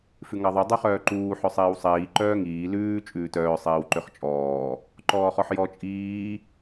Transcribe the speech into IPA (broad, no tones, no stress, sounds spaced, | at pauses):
f ʉ ŋ ɑ ðˤ ʉ dˤ y χ œː ǃ uː ħ œ sˤ iː w sˤ iː ǃ œː ŋ iː l ʉː t͡ʃʼ ʉː t œː sˤ iː w ǃ ø χ t͡ʃʼ ɔː | ǃ ɔː χ ɔ ħ j ɔ t͡ʃʼ iː